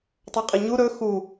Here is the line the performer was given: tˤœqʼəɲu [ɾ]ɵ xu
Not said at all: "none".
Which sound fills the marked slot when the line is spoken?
ɾ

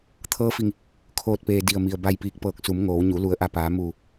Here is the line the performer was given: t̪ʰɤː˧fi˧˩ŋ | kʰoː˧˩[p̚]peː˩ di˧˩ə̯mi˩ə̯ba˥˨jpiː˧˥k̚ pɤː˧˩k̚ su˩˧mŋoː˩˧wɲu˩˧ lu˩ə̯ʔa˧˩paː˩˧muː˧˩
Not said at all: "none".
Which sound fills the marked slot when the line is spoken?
t̚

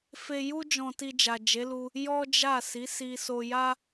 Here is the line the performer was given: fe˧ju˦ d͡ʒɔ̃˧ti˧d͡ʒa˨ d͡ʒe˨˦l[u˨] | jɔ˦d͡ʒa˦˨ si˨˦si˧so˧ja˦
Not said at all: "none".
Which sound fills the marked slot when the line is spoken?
u˧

